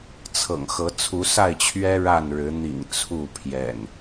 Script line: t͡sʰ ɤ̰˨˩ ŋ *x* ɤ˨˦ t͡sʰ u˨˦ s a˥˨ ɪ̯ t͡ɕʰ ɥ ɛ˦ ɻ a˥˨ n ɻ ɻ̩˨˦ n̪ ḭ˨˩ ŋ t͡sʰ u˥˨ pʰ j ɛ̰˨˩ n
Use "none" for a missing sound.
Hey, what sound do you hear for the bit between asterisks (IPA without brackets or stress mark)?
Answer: x